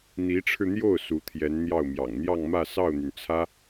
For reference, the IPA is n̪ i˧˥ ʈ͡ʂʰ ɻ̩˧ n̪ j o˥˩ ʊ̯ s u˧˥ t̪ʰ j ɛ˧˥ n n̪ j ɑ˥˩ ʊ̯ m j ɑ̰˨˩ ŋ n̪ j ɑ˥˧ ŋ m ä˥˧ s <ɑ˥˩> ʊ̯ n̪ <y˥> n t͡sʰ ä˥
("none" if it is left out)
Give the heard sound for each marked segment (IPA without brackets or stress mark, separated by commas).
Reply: ɑ˥˩, y˩